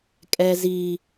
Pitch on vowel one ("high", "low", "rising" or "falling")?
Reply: low